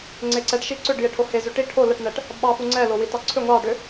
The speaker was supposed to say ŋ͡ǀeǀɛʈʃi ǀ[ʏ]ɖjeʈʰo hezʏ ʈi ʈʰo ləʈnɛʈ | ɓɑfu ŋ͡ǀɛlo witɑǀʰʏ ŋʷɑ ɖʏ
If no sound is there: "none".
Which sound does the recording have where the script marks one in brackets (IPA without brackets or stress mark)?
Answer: ʏ